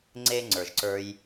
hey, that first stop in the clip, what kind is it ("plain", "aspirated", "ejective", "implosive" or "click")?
click